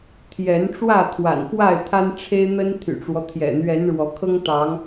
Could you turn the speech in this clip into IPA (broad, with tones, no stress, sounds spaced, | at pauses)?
t̪ʰ j ɛ˨˦ n ʈ͡ʂ w ä˥˨ t̪ʰ w a̰˨˩ n f w a˥˨ ɪ̯ t̪ʰ a˦ n ʈ͡ʂʰ e˦ ɪ̯ n̪ ə˦ n t̪ʰ y̰˨˩ ʈ͡ʂ w ɔ˦ t̪ʰ j ɛ̰˨˩ n̪ ɥ ɛ˨˦ n ɻ w ɔ˨˦ kʰ ɤ˦ ŋ t̪ ɑ˨˦ ŋ